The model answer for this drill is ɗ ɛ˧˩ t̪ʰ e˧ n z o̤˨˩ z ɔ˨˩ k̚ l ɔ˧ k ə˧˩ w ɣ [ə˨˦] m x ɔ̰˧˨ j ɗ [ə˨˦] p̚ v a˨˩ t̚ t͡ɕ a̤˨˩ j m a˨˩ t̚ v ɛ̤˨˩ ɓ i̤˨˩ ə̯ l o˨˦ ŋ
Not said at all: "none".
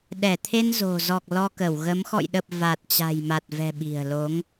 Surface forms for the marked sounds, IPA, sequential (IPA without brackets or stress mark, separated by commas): ə˨˦, ə˨˩